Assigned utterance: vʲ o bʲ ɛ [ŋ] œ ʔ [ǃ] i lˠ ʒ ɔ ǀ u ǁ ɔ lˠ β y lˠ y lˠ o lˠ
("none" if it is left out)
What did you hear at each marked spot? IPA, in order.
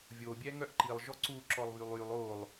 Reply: ŋ, ǃ

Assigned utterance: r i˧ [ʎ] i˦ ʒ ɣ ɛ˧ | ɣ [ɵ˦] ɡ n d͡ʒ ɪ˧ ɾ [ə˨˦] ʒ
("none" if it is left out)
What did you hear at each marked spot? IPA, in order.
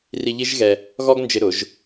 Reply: ʎ, ɔ˦, ʊ˨˦

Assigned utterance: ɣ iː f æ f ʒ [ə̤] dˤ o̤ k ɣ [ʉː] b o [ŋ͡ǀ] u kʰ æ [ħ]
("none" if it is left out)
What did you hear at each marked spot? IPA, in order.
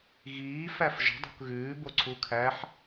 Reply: ə̤, ʉː, ǀʰ, ħ

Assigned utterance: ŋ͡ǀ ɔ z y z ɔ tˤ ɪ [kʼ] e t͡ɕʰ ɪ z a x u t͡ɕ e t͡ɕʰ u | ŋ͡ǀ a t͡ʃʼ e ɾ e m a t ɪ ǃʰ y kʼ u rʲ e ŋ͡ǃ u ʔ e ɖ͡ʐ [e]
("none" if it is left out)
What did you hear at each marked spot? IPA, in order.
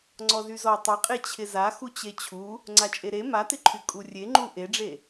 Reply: qʼ, e

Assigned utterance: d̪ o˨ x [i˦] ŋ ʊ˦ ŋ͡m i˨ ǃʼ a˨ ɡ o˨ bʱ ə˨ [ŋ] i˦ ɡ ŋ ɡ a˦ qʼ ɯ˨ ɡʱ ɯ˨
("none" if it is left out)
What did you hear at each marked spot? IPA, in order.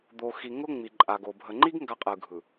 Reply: i˨, ŋ͡ǃ

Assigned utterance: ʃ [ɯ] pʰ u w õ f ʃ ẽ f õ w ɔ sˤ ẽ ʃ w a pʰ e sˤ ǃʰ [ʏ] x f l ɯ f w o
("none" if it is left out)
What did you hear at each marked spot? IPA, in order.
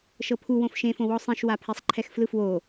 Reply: ɤ, ɛ

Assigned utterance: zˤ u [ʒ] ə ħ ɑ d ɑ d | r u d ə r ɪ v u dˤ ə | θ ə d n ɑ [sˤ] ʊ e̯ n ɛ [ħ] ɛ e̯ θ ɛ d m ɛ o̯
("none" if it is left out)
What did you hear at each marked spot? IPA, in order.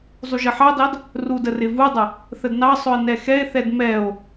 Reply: ʒ, sˤ, x

